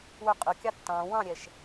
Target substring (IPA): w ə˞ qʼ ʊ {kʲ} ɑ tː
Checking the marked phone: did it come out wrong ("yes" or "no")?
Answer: no